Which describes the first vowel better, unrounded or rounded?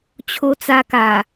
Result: rounded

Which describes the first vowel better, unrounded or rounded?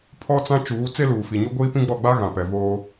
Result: rounded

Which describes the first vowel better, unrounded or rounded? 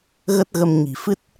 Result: unrounded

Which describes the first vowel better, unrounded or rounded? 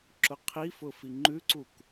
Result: rounded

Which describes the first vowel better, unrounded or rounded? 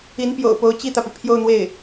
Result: unrounded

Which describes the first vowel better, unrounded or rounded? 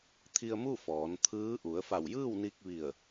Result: unrounded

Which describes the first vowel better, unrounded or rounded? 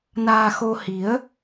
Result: unrounded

